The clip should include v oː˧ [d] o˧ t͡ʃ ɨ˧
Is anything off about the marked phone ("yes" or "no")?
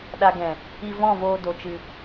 no